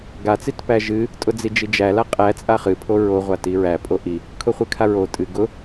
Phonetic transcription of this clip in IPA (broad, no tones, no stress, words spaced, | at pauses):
ɡat͡sit pæʒɨ | tʼʊd͡zid͡ʒid͡ʒæ laqʼæ t͡sʼaχɨ pʰoɹo ʁʷatiɹæpʼo ʔi | kʰʊχʷɨkʰaɹo tʼɨ ɡʊ